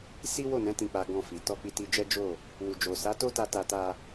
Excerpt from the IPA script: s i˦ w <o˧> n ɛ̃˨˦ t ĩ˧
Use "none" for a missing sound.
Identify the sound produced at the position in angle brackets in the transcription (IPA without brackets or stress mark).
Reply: o˦˨